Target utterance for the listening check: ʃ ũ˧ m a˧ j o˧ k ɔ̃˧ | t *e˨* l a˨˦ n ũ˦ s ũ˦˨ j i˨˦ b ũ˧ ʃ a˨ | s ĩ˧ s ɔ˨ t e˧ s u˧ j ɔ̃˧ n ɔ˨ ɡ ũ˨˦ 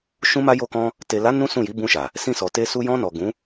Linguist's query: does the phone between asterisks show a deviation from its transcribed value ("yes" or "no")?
no